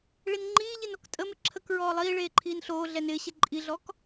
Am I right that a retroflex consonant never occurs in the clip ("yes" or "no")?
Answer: no